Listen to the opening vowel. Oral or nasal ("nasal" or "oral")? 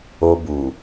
oral